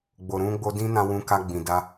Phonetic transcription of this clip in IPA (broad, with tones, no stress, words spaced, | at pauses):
ɡ͡bo˨ɾũ˧ɡ͡bo˧ dĩ˦nã˧wũ˧ ka˧ɡ͡bĩ˨da˧